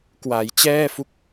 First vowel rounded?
no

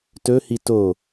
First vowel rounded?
yes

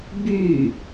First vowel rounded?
yes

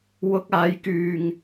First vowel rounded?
yes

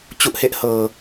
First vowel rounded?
yes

